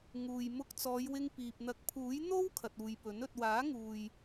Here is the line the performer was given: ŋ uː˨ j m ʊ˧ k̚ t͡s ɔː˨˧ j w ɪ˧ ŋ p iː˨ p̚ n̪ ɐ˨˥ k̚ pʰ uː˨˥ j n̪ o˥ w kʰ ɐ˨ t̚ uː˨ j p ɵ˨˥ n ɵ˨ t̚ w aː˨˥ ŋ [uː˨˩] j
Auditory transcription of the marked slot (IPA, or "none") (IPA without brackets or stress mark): uː˨